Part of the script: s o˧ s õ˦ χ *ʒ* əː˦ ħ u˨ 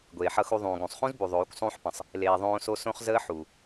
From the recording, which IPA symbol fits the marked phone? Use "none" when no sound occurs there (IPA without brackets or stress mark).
z